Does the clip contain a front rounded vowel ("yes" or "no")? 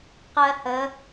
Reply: no